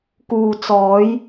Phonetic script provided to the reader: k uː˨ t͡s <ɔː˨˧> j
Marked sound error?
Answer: no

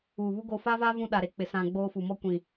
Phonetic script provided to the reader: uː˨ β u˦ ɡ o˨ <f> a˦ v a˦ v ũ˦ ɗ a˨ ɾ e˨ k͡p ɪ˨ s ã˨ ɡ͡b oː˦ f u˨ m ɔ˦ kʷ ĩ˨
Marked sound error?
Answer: no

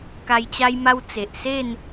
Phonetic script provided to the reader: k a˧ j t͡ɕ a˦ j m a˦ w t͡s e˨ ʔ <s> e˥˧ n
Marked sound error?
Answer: no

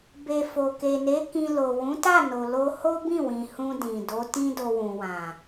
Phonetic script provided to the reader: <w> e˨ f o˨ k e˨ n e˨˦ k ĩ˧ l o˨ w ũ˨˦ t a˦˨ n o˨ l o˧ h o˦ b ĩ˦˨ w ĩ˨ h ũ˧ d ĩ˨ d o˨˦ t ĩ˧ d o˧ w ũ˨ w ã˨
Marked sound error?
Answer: yes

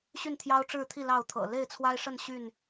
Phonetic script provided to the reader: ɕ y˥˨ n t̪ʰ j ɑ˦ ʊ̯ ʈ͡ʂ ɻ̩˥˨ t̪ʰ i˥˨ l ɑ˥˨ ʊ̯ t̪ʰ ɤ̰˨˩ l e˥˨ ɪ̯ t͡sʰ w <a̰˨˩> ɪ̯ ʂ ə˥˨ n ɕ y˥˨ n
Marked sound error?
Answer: yes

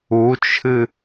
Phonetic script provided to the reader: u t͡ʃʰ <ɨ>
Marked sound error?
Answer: no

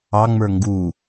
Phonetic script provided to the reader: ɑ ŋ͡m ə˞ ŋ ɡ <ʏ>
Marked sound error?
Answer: yes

